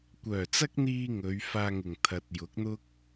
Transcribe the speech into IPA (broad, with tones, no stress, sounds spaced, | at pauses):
kʷ œː˨˩ t͡s ɐ˥ k̚ n̪ iː˧ ŋ ɵ˨˧ ɥ f aː˧ ŋ ɪ˨˩ ŋ t̪ʰ ɐ˨ t̚ j ʊ˨˥ k̚ n̪ ʊ˥ k̚